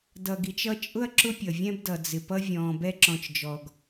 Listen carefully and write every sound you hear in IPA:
d ʌ˨ ɡ i˨ t͡ʃ ʌ˥ t͡ʃʼ ʊ˥ ɐ̯ ǁ ʊ˦ pʲ ʌ˩ vʲ ɛ̃˦ b d ʌ˩ d͡z ɪ˩ p ʌ˥ vʲ ɔ̃ː˨ b ɛ˥ ǁ ɔ̃˨ t͡ʃ d͡ʒ ɔ˩ ɡ

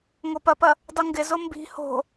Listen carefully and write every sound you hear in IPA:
ŋ o p ɐ p ɐ | dˤ u ŋ ɡ ɪ z o m b i̤ h o̤

